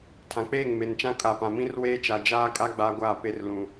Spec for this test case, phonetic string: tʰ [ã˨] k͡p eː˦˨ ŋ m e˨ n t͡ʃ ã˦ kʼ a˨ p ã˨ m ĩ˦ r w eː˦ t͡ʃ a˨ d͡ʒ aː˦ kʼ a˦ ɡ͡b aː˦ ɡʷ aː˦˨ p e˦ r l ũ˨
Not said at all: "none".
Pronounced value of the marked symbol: ã˨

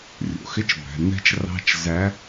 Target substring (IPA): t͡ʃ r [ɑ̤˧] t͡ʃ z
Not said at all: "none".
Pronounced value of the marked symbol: ɑ̤˧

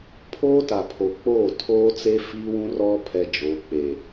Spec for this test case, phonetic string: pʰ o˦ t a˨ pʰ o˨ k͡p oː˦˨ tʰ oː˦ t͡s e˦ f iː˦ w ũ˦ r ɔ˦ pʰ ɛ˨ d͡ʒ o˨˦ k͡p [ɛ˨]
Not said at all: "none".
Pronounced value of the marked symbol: e˨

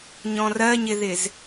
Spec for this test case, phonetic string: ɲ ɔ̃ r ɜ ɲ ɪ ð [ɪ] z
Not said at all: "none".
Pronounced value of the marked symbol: ɪ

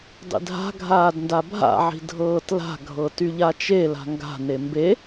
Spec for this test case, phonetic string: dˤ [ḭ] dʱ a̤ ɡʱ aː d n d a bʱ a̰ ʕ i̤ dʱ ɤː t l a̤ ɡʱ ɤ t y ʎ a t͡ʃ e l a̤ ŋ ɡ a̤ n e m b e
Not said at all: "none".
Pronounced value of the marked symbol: ḭ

